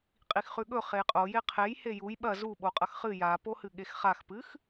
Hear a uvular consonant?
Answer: yes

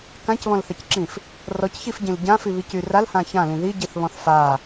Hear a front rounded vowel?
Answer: yes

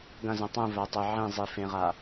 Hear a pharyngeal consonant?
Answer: yes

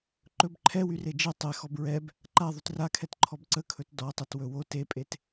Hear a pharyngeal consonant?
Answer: no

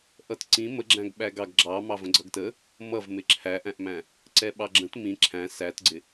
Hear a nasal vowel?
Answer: yes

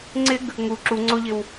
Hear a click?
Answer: yes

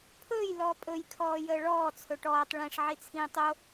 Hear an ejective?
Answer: yes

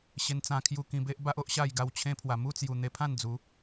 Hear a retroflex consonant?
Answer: no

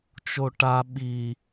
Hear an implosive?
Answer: yes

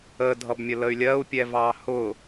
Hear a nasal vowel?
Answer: no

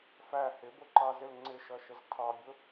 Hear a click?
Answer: yes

